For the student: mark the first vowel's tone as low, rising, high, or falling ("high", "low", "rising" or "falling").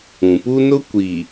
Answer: low